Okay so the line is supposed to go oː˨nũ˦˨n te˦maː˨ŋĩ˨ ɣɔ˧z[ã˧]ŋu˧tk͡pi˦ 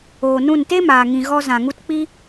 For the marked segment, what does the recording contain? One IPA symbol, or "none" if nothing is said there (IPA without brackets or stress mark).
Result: ã˨